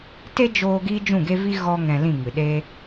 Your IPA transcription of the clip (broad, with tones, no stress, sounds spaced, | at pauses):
t e˦ d͡ʒ oː˧ ɡ iː˦ d͡ʒ ũ˦˨ ɡ e˦ v i˦ ɣ ɔ˦ ŋ ɛ̃˧ l ĩ˦˨ ŋ ɨ˨ ɗ eː˦